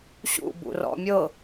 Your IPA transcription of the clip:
ɕ ṵ b ṵ r ɔ̰ mʲ ɤ

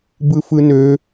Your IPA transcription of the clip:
b ɯ f ɯ n ø

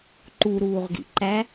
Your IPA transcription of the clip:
ǃ u ɾ uː ʁ ɡ ḭ ǃ æ

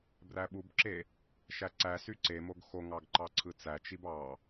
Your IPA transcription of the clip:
b r æ ɓ u b ǁ e | ʃ æ ǀ æ s y ǀ e m o ɡ x o ŋ ɑ ɡ ǃ ɑ ǀʰ ɯ t͡s æ t͡ʃ i b ɑ

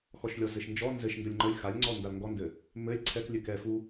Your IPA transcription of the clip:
x ɔ ʃ lʲ ɔ z ɘ ʃ n d͡ʒ ɔ n z ɘ ʃ n d ə lʲ ŋ͡ǃ ə lʲ x a lʲ ŋ͡ǀ ɔ n d a l ŋ ɡ ɔ n d ɘ | m ɘ lʲ ǀʰ ɛ k lʲ ɘ k ɛ f u

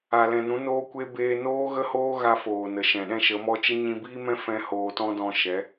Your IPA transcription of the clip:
a˨ l ɛ̃˨ n ũ˨˦ n oː˦ kʷ e˦ b eː˧ n oː˦ ɣ ə˦ h oː˦ ɣ a˦ f oː˨ n ə˨ ʃ ɛ̃˨ ɗ ɛ̃˦ ʃ ə˨˦ m ɔ˦ t͡ʃ ə˦ ɲ ĩ˧ b iː˦ m ɛ̃˦ f ɛ̃˦ h oː˧ t ɔ̃˦ d ɔ̃˧ ʃ ɛ˨˦

